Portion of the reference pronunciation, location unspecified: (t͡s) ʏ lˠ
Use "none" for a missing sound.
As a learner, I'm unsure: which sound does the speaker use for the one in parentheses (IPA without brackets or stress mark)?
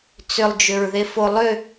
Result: t͡s